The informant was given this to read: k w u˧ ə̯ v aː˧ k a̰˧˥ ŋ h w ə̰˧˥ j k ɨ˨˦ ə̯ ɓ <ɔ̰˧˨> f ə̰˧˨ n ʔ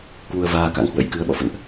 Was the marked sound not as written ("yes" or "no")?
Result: no